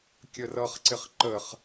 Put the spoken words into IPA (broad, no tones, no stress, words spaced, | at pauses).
kʲərʌχǀɪχ ǃəχ